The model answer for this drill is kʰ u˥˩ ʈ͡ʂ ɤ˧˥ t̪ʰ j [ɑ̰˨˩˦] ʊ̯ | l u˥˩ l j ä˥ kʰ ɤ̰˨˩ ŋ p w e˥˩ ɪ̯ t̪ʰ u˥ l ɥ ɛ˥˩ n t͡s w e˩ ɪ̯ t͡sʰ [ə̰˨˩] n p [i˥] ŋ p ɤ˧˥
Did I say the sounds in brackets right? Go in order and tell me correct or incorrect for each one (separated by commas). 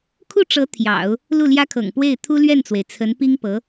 correct, incorrect, correct